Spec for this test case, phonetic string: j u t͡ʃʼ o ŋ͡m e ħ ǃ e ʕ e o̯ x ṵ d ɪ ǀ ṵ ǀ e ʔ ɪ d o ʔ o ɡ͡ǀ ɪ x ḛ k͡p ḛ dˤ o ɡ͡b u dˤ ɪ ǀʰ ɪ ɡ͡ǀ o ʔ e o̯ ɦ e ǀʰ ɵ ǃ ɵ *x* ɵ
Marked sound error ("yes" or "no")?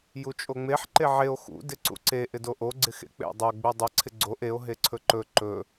yes